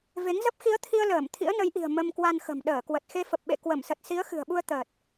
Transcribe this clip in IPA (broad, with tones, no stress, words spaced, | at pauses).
ve˨˦ŋzə˦˥p̚ xi˨˦ə̯t̪ʰi˧ə̯ ləː˧˩m t̪ʰḭ˧˥ə̯nə˨˦jʔi̤˨˩ə̯ mə˧mkwa˧nxə̤˨˩m ɗəː˧˩kwə˨˩t̚ xe˧fə˨˩p̚ɓḛ˧˨ kwə˧˩m sə˨˩t̚si˨˦ə̯xɨ̤˨˩ə̯ɓu˧ə̯ t̪əː˨˩t̚